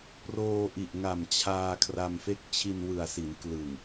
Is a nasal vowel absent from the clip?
yes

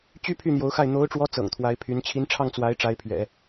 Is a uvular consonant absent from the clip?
yes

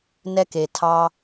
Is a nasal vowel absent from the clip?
yes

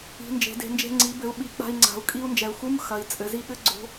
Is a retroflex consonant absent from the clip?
yes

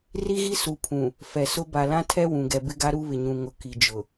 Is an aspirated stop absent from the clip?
no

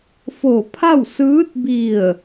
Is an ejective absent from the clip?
yes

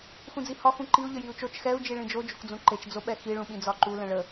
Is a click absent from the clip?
no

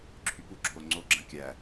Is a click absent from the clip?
no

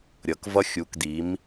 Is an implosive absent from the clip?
yes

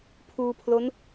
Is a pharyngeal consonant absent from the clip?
yes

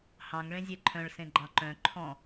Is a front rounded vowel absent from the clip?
no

